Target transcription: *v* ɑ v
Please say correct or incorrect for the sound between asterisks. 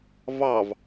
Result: correct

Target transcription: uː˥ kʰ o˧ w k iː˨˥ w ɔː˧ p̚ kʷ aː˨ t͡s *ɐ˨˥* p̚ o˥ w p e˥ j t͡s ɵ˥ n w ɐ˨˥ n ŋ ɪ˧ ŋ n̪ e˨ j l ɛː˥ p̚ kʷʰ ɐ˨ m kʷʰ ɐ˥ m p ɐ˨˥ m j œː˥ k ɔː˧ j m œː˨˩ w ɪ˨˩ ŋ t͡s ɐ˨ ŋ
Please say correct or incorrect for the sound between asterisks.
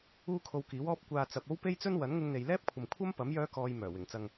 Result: incorrect: ɐ˨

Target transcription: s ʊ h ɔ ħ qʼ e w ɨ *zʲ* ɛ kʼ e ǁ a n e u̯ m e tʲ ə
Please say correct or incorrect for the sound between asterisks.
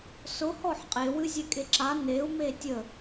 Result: correct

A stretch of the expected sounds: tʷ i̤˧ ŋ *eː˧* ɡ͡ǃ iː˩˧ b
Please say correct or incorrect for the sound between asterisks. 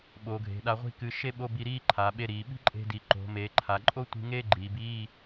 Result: incorrect: eː˥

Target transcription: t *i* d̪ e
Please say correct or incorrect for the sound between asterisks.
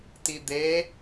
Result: correct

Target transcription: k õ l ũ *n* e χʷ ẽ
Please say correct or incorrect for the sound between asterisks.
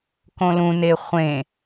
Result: correct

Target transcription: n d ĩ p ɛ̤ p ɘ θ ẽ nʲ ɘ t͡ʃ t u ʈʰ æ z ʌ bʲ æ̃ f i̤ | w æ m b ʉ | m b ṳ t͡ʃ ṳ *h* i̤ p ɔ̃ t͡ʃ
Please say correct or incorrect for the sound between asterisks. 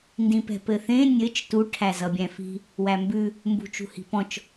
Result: correct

